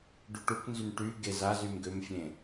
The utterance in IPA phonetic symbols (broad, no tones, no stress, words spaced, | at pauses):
ɖuʈukʷnzym ʈy ɡez azym ɡømfʲẽ